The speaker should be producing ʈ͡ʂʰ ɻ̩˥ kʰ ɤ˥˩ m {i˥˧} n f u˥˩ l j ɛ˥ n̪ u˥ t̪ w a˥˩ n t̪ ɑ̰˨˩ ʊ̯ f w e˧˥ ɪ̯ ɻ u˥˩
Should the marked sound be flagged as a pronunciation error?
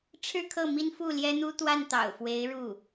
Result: yes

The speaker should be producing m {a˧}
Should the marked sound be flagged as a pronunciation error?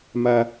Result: no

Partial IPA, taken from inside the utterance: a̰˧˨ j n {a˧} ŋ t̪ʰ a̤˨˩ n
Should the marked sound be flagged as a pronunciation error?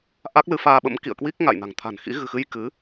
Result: yes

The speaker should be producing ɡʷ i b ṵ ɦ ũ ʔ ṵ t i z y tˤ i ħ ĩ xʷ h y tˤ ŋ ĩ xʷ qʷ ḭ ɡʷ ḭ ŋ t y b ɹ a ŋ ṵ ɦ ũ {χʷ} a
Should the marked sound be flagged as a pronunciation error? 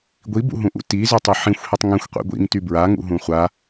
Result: no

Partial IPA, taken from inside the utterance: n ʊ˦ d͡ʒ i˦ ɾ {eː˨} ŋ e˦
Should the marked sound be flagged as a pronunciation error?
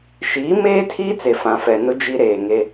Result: no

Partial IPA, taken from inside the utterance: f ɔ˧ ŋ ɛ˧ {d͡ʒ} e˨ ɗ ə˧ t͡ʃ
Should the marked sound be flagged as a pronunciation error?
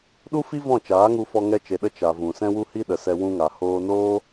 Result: yes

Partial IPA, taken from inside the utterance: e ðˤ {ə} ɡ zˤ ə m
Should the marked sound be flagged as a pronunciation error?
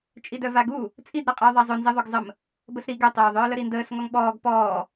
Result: yes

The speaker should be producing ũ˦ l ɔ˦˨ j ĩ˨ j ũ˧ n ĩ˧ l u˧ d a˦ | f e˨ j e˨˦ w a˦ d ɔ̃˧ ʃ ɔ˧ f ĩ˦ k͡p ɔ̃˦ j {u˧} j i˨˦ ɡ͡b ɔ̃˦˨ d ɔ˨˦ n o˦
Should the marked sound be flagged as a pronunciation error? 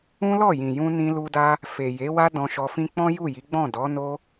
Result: yes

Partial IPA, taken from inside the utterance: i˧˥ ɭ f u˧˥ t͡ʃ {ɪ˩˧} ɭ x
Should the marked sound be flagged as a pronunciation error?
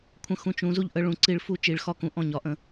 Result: yes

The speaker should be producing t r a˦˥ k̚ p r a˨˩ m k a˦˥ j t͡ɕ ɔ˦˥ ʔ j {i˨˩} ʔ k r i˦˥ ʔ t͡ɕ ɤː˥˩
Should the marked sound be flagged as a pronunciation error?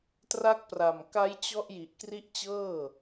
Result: no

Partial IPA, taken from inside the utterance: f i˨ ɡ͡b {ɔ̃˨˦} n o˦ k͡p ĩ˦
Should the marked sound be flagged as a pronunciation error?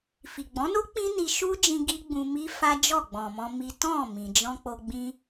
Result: no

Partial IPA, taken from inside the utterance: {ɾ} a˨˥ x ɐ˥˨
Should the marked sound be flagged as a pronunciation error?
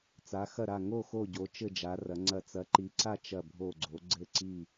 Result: yes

